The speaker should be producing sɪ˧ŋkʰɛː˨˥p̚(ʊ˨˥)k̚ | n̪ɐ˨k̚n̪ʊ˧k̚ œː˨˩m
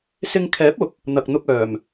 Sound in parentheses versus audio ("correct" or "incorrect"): correct